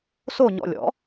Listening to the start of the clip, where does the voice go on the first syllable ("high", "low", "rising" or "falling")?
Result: falling